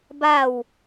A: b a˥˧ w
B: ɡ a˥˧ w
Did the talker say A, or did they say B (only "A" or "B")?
A